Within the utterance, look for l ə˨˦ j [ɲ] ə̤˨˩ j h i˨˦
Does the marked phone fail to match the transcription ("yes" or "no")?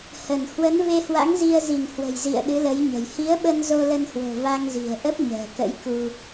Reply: no